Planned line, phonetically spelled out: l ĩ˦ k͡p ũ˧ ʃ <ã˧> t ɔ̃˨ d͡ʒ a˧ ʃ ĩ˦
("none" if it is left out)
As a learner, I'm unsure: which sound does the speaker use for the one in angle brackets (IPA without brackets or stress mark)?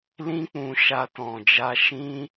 a˧